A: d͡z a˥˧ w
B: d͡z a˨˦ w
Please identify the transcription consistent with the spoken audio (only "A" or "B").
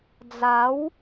B